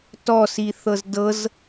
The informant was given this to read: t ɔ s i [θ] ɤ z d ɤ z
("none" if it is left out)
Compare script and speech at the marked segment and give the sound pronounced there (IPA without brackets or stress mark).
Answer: θ